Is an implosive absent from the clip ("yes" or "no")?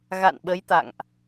no